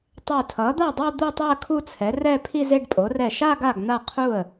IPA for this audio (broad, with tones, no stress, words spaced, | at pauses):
tˤɛ˧˩tʰʌ˩˥d̪a˥˩dˤo˥˧ d̪u˥˧tˤɛ˥˧ə̯ kʰu˥˧t͡sʰɛ˩˥ rɛ˥˧pʰi˥˧ze˥˧ɖpʼo˩˥ rɛ˧˩ʃa˥˧ ɡa˥˩ɡn̪a˥˩qʰu˥˩ə̯